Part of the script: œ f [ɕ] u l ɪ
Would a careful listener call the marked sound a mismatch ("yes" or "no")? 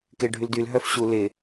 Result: no